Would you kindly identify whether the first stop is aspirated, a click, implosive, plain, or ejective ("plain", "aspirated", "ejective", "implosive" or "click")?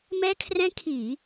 aspirated